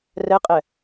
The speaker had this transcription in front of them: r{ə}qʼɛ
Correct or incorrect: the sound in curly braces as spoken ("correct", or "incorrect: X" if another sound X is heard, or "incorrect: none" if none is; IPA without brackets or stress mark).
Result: incorrect: ɛ